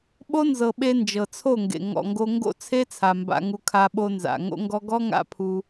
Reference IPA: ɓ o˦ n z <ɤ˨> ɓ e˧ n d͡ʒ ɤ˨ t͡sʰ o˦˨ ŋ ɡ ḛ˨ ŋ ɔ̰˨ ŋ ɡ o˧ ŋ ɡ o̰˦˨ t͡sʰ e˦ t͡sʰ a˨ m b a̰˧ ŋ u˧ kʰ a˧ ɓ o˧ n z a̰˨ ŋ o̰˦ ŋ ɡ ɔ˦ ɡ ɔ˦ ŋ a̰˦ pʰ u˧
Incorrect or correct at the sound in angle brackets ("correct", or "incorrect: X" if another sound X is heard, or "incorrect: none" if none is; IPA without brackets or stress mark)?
correct